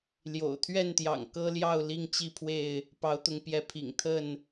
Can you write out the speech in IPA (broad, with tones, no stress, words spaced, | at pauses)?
ljo̰˨˩ʊ̯t̪ʰɥɛ˥˨nt̪jɑ̰˨˩ŋ kɤ˦ljɑ˥˨ʊ̯ li˥˨ŋt͡ɕi˥˨pʰwe˥˨ɪ̯ | pɑ˨˦ʊ̯t̪ʊ˨˦ŋpjɛ˨˦pʰḭ˨˩ŋ t̪ʰə˥˨n